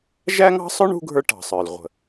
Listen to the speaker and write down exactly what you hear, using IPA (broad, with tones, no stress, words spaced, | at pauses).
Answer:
ʒæ˥ŋɑ̤˥sˤʊ˥ɳ ṳ˥ɡʱə˞˥ʈɑ̤˩sˤə˞˩l ʁʷə̤˩